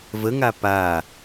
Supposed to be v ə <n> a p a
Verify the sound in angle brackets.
incorrect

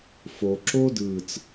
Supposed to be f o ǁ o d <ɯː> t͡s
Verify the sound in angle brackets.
correct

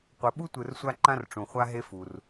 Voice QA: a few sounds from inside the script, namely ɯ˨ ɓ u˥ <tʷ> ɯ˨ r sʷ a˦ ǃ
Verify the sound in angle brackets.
correct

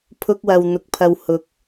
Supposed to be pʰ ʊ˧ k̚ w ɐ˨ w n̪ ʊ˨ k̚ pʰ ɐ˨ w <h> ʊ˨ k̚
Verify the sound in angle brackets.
correct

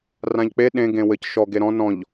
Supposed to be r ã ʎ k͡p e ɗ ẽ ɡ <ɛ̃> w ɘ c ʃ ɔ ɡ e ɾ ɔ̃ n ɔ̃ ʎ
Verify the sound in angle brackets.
incorrect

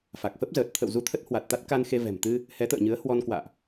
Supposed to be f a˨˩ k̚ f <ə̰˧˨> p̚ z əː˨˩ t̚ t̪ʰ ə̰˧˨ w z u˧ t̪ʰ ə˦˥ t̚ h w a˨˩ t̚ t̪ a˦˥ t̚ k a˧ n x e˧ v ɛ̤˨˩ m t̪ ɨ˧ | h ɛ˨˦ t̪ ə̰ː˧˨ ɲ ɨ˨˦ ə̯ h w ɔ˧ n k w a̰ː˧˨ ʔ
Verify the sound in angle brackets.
incorrect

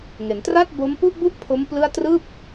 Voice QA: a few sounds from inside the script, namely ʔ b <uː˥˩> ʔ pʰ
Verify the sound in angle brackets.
incorrect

